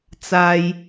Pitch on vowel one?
low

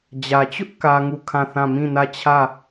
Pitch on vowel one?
low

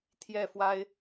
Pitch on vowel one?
falling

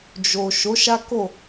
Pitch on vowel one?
low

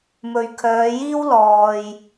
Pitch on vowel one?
low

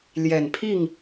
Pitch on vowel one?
low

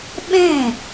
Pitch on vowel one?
falling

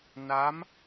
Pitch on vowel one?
rising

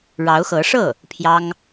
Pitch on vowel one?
rising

